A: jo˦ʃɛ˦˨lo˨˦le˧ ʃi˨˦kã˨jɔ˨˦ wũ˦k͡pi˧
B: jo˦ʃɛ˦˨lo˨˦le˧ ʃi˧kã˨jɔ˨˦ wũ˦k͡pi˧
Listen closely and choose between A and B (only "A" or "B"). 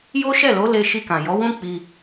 B